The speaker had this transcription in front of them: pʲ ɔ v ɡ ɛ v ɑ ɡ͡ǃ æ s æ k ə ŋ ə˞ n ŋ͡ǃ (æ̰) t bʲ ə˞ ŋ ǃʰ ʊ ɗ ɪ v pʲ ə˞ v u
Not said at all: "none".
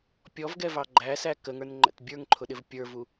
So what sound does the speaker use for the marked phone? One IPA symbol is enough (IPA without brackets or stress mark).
æ̰